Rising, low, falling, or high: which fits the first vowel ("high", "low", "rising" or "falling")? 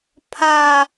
high